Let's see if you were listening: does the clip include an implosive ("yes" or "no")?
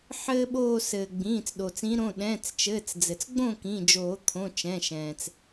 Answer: yes